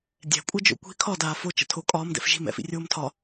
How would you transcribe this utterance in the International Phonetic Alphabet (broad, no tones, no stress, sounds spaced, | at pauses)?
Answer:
dʲ ɛ̤ kʷʼ ɜ d͡ʒ o̰ kʷ i̤ kʰ ɒ d aː f o t͡ʃ ə̰ tʰ o kʼ ɒː m d ɛ̰ f ʒ i̤ m ɛ̰ f ḭ rʲ oː m tʰ ɒ